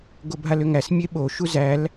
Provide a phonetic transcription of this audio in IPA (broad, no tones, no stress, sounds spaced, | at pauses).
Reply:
ɡ o bʱ a l ʏ ŋ æ s mʲ e ɓ o ʃ u z æ l